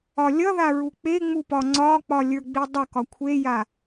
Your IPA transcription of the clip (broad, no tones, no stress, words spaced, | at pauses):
ɒlʲʌða ɹuk͡peŋ͡mu pɒŋ͡ǀɒk͡pɒ lʲə˞ɡ͡bidˤʌ kɒkʷʰeja